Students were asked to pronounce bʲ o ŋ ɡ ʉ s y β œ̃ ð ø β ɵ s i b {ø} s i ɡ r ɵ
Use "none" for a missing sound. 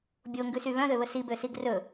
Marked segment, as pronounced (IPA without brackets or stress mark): ø